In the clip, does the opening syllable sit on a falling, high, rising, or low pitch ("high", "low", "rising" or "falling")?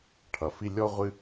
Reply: low